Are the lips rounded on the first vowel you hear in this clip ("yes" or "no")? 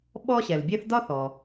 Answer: yes